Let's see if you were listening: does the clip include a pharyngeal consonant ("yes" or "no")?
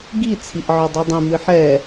yes